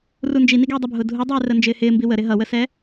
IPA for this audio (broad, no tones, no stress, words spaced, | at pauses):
rund͡ʒi niɡɛːdˤəbʱʊː dʱudˤɛː rənd͡ʒɪːhɪː mbiwə ɾɪɦʌwəsɛ